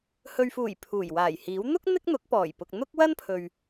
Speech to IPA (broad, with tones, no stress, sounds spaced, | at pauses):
h ɵ˨ ɥ f uː˨˩ j pʰ uː˨˩ j w aː˨˩ j h iː˨˥ w n̪ ʊ˥ k̚ n̪ ɪ˥ k̚ n̪ ʊ˨˥ k̚ p ɔː˨˩ j p ʊ˨ k̚ n̪ ʊ˥ k̚ w ɐ˥ n pʰ ɵ˨ ɥ